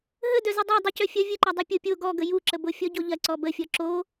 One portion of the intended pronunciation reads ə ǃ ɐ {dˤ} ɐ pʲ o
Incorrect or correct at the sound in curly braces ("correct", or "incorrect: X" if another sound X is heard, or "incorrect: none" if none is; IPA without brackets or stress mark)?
correct